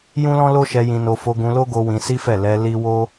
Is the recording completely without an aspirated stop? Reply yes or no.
yes